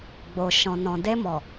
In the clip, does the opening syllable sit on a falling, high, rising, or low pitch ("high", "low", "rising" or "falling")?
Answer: low